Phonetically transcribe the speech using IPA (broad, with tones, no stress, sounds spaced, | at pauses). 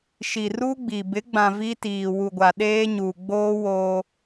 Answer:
ʃ i˨ r u˦ ɡ͡b i˨ b ɪ˨˦ ɡ͡b ã˨ v i˦ t iː˨ w u˨ ɡʷ a˨ ɗ eː˦ ɲ uː˨ ɡ͡b oː˦ w oː˦